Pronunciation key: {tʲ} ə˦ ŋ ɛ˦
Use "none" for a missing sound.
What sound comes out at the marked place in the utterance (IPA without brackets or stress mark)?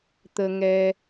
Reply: t̪